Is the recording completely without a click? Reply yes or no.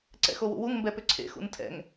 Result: no